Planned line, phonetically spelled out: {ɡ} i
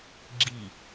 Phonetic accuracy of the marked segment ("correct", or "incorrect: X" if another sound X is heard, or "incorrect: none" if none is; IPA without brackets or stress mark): incorrect: ɡ͡ǁ